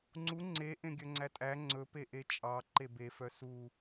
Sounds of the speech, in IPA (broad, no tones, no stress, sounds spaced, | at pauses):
ŋ͡ǀ u ŋ͡ǀ e ʔ ẽ ɡʲ œ ŋ͡ǀ æ tʼ æ ŋ͡ǀ ɵ p e ʔ e t͡ʃʼ ɑ ǃ e b e f œ s u